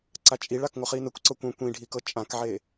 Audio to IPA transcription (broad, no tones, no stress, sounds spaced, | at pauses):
ǀ a t͡ʃʼ i ɭ a k ŋʷ ə χ i n ə kʷ ǀ ɤ kʷ ə̃ kʷ ĩ ɖʱ i k ɤ t͡ʃʼ ã k ʕ e